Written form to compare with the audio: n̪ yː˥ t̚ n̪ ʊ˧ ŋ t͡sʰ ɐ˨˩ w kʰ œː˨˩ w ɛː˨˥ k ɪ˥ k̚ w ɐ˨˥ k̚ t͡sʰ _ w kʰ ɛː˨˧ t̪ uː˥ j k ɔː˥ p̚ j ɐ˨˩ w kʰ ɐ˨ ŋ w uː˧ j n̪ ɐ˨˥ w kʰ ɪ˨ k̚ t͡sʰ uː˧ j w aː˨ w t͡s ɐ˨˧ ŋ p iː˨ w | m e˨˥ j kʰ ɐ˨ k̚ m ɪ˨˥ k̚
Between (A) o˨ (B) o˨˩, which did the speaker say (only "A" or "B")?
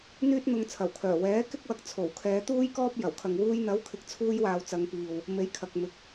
B